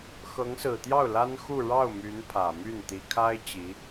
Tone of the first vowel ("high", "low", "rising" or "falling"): rising